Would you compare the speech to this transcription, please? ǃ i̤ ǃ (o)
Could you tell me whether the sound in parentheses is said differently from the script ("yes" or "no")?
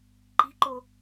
no